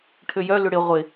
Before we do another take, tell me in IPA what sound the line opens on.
ʈʰ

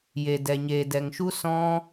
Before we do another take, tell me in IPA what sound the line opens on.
j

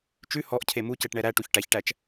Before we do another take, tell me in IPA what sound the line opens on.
t͡ʃ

